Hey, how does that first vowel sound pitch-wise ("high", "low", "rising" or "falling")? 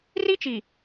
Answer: high